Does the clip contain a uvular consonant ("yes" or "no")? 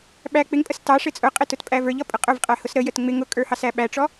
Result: yes